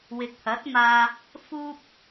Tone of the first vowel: low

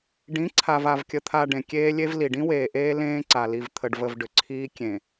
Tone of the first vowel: rising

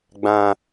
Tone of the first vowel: high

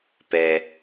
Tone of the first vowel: low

